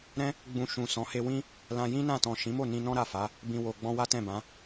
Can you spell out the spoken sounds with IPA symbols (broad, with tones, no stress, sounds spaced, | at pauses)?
ɾ ɛ̃˦ | ɡ͡b ũ˧ ʃ ũ˨ s ɔ̃˨˦ h e˧ w ĩ˦ | l ã˧ j ĩ˦ n ã˦˨ t ɔ̃˨ ʃ ĩ˨˦ m o˦˨ n ĩ˧ n ɔ̃˦ ɾ a˦˨ f a˨˦ | b ĩ˨ w o˨ ɡ͡b ɔ̃˧ w a˦ t ɛ̃˦˨ b ã˨˦